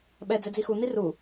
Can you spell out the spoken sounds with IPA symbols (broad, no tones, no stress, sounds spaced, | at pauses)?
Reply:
ɓ ɛ d͡z ɛ d͡z i x u n̪ i r u